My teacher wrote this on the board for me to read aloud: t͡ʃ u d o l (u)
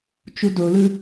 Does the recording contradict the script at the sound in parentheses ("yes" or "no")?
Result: yes